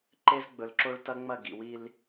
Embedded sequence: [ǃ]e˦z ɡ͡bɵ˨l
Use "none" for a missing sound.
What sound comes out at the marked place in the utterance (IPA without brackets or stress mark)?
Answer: ǃ